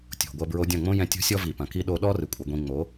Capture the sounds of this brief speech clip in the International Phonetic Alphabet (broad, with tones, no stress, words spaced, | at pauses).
tʲo̤˨ɡʷɐ˧bɹo˧ dʲɐ̃˦˨ŋ͡mõ˦ jɛ̃˧tʲo̤˦sʲɔ˦ vi˨pɐ̃˨ki˦ ɗo˧ɗɔ˦rɨ˨ kʷʼɐ˧ɡʷĩ˧ ŋ͡mo˨˦